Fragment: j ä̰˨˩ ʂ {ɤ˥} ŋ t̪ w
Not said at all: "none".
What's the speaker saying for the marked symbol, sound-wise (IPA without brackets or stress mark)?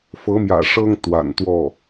ɤ˥